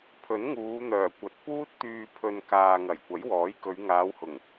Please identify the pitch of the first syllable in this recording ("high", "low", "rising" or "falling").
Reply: rising